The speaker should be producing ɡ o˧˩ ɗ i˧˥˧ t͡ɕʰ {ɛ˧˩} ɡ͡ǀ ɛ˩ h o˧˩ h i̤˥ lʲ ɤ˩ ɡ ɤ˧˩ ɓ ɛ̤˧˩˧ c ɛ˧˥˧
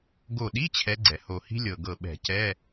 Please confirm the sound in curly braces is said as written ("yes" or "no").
no